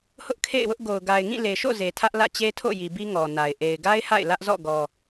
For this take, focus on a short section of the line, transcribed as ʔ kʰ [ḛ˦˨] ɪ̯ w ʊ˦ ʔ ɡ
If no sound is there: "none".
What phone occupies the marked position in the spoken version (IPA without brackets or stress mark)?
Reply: ḛ˦˨